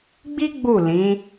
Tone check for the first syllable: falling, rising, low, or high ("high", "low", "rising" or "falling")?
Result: high